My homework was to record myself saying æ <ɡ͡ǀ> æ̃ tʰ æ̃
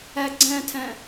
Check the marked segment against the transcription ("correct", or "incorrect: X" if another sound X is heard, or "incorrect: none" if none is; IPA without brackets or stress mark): correct